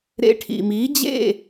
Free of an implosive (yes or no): yes